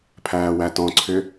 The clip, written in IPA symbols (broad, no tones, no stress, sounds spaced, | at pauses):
pʰ æː w æ t ɔ̃ ǀʰ ʏ